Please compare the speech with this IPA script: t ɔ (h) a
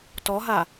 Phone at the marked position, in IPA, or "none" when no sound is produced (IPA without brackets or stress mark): ɦ